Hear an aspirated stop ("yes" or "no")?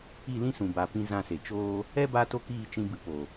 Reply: no